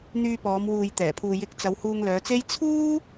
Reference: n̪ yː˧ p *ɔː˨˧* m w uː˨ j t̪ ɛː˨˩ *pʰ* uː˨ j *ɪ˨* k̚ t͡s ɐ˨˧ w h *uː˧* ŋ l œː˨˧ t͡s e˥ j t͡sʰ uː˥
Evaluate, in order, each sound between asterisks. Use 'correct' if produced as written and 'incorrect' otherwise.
correct, correct, incorrect: ɪ˨˥, correct

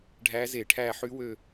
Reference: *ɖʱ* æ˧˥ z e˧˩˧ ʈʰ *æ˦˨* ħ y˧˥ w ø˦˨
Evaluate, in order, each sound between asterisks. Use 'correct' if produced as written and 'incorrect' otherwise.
correct, correct

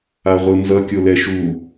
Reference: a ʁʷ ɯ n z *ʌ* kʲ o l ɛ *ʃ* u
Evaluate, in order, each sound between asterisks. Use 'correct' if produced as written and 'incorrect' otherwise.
correct, correct

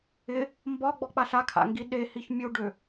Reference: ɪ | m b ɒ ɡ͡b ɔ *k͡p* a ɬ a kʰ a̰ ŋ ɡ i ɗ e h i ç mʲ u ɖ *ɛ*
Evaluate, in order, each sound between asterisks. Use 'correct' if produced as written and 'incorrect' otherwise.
correct, incorrect: ø

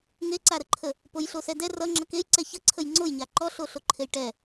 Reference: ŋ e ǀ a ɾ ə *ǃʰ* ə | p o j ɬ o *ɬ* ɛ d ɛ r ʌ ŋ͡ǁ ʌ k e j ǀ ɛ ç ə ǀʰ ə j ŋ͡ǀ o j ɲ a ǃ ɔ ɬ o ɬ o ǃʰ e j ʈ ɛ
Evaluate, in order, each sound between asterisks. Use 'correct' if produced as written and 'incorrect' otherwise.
correct, incorrect: s

